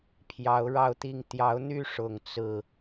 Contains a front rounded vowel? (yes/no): yes